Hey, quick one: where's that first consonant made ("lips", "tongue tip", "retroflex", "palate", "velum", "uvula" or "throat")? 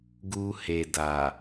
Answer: velum